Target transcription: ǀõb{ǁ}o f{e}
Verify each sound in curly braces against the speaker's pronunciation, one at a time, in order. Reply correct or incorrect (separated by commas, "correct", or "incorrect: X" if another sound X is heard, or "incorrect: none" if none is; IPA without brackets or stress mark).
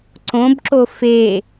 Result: correct, correct